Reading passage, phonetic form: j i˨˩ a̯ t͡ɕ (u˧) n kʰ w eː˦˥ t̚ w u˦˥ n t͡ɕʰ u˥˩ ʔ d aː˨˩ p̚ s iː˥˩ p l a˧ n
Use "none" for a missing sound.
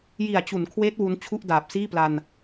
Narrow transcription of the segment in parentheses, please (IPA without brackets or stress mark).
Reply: u˩˦